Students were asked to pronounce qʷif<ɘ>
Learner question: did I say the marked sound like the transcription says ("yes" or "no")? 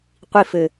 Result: yes